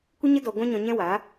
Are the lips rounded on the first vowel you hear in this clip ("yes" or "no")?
no